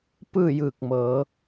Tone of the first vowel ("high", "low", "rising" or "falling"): falling